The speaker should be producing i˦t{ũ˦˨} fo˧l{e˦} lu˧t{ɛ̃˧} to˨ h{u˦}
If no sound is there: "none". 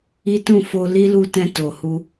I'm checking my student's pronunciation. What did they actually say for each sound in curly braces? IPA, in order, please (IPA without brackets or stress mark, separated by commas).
ũ˦˨, i˦, ɛ̃˧, u˧